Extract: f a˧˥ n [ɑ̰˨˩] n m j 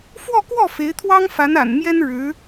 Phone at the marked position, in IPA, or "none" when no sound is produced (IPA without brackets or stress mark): a̰˨˩